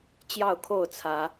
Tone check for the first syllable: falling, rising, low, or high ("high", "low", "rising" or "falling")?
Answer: falling